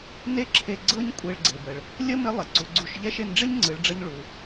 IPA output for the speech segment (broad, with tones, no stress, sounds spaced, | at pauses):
n e˥ ǁʰ e˧ ɡ͡ǀ ɤ˥ ɲ kʷʼ e˧ ɭ ɡ͡ǀ e˩ b ə˩ ɭ | lʲ ə˥ m ɪ˧˥ lˠ ɪ˩ ǀ u˩˧ ɡ͡ǀ u˧ ʃ ʎ ɛ˥ ʃ e˧ n ɖ͡ʐ ɪ˥ ɲ ŋ͡ǀ ɯ˩˧ ɭ ɖ͡ʐ ə˧ ɲ ɭ u˩